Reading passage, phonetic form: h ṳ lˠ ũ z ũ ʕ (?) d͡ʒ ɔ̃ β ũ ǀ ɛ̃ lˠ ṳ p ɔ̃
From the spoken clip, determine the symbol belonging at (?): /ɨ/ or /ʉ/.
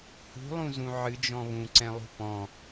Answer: ɨ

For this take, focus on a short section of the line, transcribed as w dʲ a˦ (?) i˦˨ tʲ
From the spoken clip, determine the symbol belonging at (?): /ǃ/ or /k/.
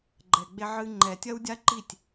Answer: ǃ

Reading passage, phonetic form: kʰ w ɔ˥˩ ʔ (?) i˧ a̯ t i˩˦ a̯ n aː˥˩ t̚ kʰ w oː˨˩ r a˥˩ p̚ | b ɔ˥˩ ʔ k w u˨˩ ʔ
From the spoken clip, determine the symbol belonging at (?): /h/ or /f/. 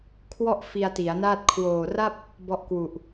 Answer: f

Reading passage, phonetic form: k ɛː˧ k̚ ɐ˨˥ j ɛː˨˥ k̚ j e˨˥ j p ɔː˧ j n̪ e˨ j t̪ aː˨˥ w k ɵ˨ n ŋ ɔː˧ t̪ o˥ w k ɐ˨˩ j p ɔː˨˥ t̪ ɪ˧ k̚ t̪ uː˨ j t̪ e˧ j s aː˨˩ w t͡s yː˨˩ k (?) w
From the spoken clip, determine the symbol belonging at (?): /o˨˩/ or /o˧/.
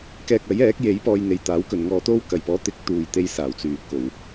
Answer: o˨˩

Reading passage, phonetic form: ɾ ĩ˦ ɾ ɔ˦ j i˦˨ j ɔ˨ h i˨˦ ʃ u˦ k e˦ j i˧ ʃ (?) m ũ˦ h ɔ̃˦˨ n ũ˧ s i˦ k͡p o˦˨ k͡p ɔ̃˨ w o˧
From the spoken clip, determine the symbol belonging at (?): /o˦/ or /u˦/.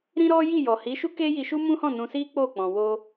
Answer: u˦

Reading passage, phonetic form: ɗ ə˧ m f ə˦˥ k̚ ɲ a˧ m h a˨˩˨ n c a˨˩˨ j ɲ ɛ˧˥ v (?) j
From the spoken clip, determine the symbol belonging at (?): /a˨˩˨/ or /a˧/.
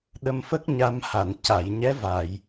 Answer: a˨˩˨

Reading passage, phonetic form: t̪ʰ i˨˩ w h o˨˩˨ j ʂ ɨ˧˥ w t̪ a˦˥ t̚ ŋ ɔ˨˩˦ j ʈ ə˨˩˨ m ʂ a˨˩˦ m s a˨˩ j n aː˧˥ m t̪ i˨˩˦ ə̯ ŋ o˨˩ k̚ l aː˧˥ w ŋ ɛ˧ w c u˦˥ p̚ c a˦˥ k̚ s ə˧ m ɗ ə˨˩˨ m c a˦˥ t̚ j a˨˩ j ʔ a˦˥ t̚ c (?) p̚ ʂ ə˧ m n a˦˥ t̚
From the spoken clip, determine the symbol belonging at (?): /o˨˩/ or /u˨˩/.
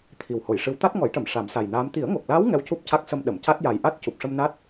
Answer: u˨˩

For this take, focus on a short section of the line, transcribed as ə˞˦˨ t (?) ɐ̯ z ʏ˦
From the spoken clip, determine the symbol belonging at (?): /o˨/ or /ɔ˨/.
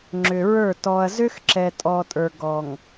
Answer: ɔ˨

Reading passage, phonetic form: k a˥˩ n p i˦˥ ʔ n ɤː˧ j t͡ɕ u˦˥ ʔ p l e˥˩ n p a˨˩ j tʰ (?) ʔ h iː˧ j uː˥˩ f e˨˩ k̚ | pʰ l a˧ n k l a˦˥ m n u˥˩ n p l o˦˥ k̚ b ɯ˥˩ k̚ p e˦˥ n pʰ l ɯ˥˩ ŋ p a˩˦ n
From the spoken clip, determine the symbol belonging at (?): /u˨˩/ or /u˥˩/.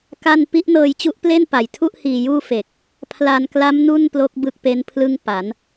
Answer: u˥˩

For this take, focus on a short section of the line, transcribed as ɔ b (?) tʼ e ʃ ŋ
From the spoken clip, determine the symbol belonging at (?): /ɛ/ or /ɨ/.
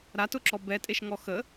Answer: ɛ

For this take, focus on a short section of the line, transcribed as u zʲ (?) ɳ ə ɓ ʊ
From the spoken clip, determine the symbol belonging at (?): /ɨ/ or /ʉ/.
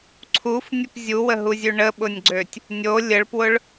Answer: ʉ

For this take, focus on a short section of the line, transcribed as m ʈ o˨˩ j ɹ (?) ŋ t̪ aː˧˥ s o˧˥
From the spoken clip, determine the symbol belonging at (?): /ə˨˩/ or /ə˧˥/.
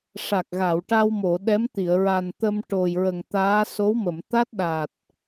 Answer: ə˨˩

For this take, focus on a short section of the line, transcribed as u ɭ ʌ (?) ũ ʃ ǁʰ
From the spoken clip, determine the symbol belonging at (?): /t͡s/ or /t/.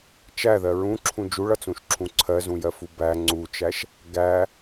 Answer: t͡s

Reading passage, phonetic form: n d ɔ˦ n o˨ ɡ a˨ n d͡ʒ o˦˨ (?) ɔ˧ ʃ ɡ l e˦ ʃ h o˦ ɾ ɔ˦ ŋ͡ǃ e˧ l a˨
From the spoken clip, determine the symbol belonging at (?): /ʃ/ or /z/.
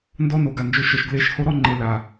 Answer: ʃ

